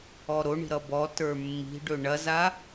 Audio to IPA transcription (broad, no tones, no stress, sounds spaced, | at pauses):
ɔ ɾ o ɳ i̤ ɾ ʌ b ɔ t ə˞ mː i̤ ɖ ɵ ɳ ɐ z a